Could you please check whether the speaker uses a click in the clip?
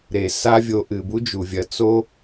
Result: no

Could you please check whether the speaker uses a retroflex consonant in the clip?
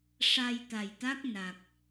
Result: yes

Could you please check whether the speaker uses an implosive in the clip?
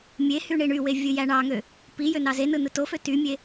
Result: no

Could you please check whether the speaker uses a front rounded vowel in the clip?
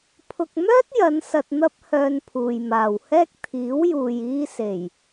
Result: yes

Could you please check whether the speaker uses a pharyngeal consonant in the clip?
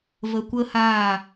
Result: no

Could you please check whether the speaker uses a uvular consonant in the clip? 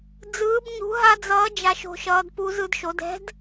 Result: no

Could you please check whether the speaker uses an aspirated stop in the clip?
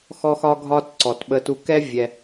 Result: no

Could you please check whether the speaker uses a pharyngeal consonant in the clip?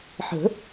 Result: yes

